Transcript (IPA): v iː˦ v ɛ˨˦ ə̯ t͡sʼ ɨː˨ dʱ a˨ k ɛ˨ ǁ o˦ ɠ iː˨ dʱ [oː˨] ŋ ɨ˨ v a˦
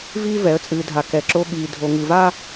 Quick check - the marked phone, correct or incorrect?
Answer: incorrect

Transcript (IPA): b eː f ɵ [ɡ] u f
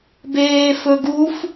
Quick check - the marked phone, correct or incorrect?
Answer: correct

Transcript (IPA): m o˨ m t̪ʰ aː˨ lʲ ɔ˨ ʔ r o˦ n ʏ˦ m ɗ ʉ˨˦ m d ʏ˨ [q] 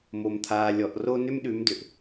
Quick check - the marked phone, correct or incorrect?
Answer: incorrect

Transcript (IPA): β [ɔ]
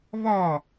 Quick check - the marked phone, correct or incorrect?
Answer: correct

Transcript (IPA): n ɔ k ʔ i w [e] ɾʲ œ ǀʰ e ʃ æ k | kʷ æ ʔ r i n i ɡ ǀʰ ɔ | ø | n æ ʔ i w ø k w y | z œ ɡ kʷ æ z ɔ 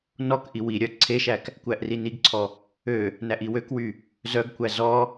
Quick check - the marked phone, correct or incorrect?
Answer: incorrect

